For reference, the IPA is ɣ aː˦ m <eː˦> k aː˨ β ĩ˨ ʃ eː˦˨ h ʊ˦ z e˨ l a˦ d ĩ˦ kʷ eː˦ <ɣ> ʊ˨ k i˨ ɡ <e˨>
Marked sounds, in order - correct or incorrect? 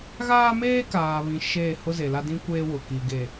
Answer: correct, incorrect, correct

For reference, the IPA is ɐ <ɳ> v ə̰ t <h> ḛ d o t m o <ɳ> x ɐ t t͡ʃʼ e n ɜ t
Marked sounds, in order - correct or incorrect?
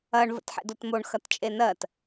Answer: correct, incorrect, correct

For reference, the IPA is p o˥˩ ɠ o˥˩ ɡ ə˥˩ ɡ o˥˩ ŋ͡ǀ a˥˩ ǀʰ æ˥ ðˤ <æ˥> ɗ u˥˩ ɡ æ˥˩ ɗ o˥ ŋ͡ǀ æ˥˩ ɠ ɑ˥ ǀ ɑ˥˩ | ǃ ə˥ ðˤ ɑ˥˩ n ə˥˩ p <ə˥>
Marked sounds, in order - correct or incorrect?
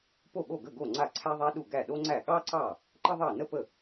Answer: correct, incorrect

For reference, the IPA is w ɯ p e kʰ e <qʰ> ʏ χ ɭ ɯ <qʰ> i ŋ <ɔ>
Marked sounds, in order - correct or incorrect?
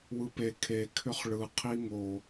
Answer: incorrect, correct, incorrect

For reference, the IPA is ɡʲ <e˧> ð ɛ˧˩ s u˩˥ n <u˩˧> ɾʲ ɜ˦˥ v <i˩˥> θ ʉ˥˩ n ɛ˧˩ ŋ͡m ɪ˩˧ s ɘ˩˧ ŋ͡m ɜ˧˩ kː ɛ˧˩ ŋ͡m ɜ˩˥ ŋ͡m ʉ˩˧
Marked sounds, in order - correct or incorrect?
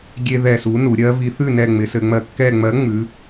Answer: correct, correct, correct

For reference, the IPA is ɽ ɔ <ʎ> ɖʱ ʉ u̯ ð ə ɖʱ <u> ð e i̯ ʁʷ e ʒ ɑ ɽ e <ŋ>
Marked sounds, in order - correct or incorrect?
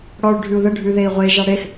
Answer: incorrect, incorrect, incorrect

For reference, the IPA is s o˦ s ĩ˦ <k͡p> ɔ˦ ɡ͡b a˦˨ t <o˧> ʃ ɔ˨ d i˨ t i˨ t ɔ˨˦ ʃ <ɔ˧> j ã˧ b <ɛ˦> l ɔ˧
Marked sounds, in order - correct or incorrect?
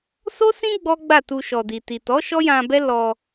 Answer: incorrect, incorrect, incorrect, correct

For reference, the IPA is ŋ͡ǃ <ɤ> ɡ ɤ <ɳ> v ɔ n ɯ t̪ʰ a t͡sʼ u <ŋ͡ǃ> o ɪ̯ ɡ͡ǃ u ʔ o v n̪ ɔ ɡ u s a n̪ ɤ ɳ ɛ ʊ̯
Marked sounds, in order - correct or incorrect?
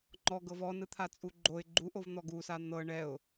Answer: incorrect, incorrect, incorrect

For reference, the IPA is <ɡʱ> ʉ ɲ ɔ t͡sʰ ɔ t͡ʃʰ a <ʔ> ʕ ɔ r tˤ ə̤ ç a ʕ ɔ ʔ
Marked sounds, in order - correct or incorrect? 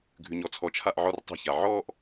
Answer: correct, correct

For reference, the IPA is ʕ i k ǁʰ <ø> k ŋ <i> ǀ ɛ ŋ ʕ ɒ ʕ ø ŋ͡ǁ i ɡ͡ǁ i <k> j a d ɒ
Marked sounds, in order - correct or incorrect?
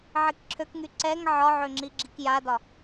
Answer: correct, incorrect, correct

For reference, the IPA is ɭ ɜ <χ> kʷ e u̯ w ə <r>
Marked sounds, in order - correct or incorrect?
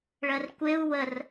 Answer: incorrect, correct

